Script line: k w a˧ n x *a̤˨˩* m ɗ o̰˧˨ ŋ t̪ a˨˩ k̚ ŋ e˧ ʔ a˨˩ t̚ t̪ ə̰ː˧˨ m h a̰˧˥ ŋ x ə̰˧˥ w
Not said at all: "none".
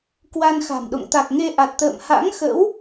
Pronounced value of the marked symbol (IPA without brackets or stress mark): a̤˨˩